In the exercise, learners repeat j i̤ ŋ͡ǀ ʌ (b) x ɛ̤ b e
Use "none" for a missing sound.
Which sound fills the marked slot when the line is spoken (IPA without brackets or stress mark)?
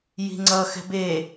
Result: none